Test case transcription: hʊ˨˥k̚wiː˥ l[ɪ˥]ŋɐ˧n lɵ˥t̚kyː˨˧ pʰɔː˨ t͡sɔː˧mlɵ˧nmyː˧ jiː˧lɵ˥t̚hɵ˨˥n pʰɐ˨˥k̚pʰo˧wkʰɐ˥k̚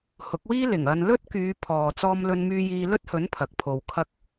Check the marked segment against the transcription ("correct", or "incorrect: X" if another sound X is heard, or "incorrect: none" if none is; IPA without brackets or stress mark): incorrect: ɪ˨˩